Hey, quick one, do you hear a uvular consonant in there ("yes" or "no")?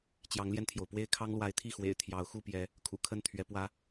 no